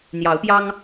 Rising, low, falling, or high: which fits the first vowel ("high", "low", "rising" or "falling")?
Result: rising